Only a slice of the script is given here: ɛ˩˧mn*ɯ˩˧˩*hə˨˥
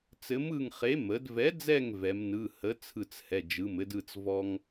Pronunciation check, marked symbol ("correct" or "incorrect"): correct